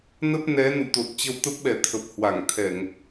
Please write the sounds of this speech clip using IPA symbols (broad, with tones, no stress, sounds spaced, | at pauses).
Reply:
n ə˦˥ p̚ n ɛ˨˦ n ṵ˧˨ t̪ o˨˩ t̚ t͡ɕ ə˧ w t̪ ə˦˥ p̚ ɓ ɛ˨˩ t̪ʰ ə˨˩ p̚ h w a˧˩ ŋ t̪ʰ ɛ˧˩˨ ŋ